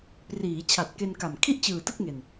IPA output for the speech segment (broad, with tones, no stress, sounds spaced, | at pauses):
p r iː˩˦ t͡ɕʰ a˨˩ t̚ k e˧ n k a˨˩ m kʰ i˥˩ ʔ t͡ɕ ɯː˨˩ t ɯ˥˩ k̚ ŋ e˨˩ n